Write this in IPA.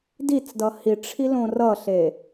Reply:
dit͡sdʌ hiʈ͡ʂʰilõ rʌɬe

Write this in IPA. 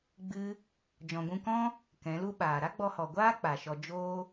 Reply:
ɡ͡bɨ˧ | d͡ʒɔ̃˨ɡʷũ˧kɔ̃˦ | kɛ̃˨˦lu˦ɓaː˨ ɾa˦ɡ͡bɔ˧hɔ˨ ɡʷaː˦ k͡pa˨ʃɔ˧ d͡ʒoː˧

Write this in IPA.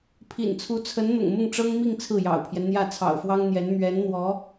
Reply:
pʰḭ˨˩nt͡sʰu˧˥t͡sʰə˧˥nn̪ʊ̰˨˩ŋ mʊ˥˩ŋʈ͡ʂɤ˥ŋmi˥˧ŋ t͡sʰɹ̩˥˩jɑ̰˨˩ʊ̯pʰjɛ˦nn̪jä˥˩ t͡sʰɑ̰˨˩ʊ̯fwɑ˥ŋn̪jɛ˧˥n mɥɛ˧˥nn̪wɔ˧˥

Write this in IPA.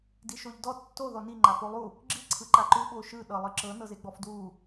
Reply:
diʃoʎdɔ tːo ðɔni ŋ͡ǃafolˠu | ɡ͡ǁi ǀʰɯǃaǃu ɓoʃɯ ɗɤlˠɯǁɤ nɤzeɡ͡bɔfdwu

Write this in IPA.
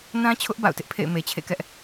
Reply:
nã˦t͡ɕʰʊ˦ʔ ba̰˦˨ʊ̯tɪ˦ʔpʰḛ˦˨ɪ̯ me˨t͡ɕʰḛ˦˨kɛ˦ʔ

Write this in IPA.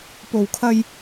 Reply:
po˨˩wkʰɐ˧j

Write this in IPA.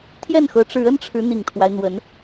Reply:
t̪ʰjɛ˥˩nxɤ˧˥ʈ͡ʂɻ̩˧˥ ə˥nʈ͡ʂʰɻ̩˧˥ n̪i˨˩ŋt̪ʰwa˦ɪ̯n̪wə˧˥n

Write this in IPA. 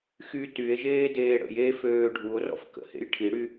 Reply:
xy tye̯ʒeː deːɽə̰j e føːɖʱuo̯rɔ̰f kə̰hḛj ʈʰiɽy

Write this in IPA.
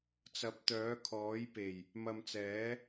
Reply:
t͡sɐ˨˥p̚t̪œː˨˥kʰɔː˨˥jpe˨˩j | mɐ˨mt͡sɛː˨˥

